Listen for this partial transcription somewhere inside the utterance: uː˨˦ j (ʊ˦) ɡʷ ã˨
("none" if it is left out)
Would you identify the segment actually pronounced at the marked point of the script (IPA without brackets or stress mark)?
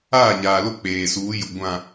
ʊ˨